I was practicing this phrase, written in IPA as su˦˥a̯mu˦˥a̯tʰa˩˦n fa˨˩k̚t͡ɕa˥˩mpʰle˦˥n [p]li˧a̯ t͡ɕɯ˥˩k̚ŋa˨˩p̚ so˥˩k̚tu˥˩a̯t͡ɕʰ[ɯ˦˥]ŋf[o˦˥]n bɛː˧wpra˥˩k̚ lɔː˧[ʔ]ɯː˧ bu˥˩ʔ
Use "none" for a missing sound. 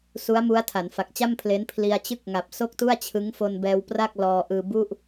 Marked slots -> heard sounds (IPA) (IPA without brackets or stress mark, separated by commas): pʰ, ɯ˦˥, o˧, ʔ